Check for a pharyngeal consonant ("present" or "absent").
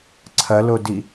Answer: absent